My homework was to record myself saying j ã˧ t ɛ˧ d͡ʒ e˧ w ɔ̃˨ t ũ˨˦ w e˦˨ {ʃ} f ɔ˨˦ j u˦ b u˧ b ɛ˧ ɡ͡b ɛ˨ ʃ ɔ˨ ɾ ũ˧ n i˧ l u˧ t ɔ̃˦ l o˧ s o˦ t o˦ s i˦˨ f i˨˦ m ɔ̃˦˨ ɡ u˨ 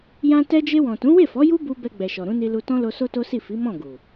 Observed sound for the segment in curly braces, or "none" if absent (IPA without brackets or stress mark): none